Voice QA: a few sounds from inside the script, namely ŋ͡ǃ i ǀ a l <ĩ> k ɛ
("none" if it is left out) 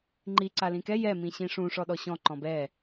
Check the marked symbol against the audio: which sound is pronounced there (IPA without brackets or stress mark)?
ĩ